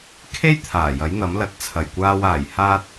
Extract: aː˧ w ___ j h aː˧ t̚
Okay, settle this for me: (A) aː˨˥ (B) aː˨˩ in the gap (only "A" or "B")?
B